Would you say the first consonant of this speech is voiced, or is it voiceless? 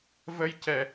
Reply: voiced